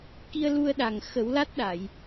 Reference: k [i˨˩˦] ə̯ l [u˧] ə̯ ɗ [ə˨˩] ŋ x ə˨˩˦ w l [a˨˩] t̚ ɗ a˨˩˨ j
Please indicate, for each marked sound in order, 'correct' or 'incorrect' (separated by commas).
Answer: incorrect, correct, incorrect, incorrect